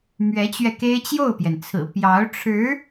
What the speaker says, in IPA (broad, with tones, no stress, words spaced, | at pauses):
mɥɛ˧˥t͡ɕɥɛ˧ke˥ɪ̯ t͡ɕjo˥˩ʊ̯pjɛ˩nt͡sʰɹ̩˨˩ pjɑ˧˥ʊ̯ʈ͡ʂʰɻ̩˧˥